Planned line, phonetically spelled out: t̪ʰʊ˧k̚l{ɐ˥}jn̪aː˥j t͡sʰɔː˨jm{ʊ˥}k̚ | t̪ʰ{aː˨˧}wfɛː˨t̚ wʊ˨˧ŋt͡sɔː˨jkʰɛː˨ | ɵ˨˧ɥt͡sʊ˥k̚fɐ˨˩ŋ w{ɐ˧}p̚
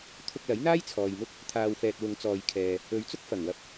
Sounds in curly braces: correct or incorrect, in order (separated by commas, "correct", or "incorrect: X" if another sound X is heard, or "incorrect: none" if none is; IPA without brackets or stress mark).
incorrect: ɐ˨˥, correct, incorrect: aː˨, correct